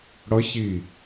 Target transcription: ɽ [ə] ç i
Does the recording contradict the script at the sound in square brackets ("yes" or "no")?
yes